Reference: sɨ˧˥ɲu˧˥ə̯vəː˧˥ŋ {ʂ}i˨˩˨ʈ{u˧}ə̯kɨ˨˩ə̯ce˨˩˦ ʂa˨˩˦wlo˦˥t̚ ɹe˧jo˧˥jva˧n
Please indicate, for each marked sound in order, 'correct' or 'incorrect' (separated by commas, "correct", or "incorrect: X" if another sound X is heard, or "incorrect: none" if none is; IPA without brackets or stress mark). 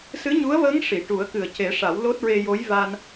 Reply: correct, incorrect: u˨˩˦